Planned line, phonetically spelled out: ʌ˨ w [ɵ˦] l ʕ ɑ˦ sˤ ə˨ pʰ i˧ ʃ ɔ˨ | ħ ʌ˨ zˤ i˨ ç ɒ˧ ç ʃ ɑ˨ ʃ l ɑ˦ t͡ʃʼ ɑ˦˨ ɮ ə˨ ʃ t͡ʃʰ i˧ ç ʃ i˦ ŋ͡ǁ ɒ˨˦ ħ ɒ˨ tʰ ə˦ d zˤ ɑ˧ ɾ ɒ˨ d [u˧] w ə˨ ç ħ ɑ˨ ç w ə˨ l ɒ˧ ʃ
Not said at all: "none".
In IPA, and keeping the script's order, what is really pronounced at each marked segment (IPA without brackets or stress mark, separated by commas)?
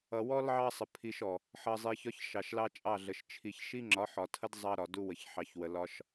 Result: ɔ˦, u˧